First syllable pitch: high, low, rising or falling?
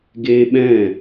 high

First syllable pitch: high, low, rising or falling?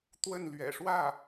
falling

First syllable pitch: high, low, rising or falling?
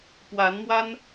rising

